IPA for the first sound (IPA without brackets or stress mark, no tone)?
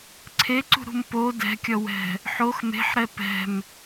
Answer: ǀʰ